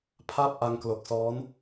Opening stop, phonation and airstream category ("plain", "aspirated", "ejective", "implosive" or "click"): aspirated